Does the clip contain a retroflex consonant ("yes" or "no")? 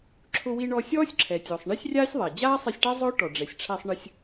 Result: yes